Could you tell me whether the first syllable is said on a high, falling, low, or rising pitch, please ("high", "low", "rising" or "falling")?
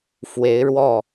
rising